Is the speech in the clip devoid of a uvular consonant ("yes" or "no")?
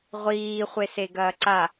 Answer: no